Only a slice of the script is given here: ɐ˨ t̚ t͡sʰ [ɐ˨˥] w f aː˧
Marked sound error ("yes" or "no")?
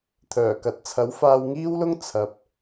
no